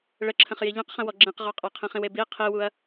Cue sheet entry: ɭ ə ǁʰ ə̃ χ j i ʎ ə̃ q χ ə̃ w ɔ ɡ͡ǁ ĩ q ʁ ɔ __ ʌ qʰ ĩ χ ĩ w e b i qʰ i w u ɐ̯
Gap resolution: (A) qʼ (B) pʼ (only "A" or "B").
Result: A